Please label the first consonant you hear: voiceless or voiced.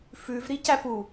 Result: voiceless